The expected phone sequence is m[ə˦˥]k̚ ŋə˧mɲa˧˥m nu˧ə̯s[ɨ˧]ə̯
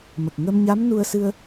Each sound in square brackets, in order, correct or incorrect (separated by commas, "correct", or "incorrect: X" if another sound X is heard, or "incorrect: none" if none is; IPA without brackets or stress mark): incorrect: ə˨˩, correct